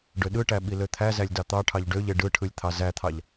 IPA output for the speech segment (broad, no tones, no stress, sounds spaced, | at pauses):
ɖ ø ɗ ɯ ʈ æ ɓ i l ø t̪ʰ æ z æ lʲ d ɑ t̪ ɑ ʈʰ ɑ ʎ ɖ ø ʎ e ɖ ɯ ʈʰ ɯ lʲ t̪ʰ ɑ z æ t̪ʰ ɑ ʎ